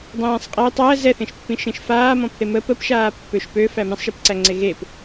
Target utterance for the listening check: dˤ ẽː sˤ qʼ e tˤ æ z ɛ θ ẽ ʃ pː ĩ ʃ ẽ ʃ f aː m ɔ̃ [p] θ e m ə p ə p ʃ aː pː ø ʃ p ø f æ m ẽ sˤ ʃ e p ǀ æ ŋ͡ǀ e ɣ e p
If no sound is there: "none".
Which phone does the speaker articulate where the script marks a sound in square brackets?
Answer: p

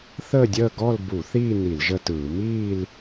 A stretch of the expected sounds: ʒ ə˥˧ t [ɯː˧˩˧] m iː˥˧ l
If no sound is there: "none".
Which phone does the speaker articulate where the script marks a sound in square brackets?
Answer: ɯː˧˩˧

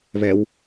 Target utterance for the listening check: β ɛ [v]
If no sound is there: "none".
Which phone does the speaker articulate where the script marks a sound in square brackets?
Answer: w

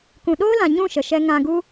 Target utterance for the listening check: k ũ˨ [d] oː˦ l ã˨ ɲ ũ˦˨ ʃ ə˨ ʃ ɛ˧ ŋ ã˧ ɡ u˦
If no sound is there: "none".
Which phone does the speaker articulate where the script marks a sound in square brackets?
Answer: ɗ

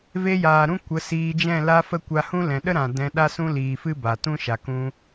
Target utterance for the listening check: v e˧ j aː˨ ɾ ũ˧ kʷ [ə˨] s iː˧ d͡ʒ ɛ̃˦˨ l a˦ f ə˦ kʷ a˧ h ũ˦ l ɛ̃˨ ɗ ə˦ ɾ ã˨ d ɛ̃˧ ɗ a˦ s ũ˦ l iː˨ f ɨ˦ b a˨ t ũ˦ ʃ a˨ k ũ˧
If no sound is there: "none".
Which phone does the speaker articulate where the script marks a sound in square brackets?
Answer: ə˨˦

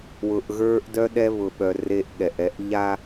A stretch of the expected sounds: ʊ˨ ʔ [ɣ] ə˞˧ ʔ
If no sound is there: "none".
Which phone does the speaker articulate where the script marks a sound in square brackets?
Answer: ɣ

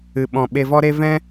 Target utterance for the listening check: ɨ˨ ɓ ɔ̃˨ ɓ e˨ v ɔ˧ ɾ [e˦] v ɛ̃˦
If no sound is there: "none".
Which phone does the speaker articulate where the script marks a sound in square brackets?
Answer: e˧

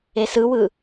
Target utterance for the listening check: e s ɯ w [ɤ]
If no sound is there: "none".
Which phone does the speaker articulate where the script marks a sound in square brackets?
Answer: ɯ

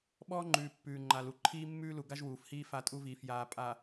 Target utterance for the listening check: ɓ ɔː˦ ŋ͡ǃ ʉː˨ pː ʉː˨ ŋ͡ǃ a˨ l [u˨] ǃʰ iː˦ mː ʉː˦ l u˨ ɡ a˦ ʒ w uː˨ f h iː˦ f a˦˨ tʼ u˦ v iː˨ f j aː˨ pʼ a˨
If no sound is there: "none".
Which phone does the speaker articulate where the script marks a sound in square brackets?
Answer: u˨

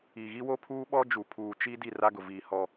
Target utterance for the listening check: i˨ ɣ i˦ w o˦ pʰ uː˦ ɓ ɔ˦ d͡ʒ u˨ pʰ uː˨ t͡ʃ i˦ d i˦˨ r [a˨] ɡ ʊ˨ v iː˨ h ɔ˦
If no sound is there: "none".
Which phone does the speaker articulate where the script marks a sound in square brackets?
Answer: a˦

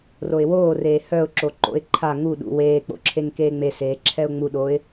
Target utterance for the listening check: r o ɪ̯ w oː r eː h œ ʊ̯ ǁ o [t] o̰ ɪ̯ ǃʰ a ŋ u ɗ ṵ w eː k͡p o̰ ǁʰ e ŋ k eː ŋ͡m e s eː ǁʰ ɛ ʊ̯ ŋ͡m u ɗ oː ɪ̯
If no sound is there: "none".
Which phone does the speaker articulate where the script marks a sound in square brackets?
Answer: ǃ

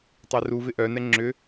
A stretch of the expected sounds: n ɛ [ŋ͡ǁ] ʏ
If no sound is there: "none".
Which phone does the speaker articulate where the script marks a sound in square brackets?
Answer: ŋ͡ǁ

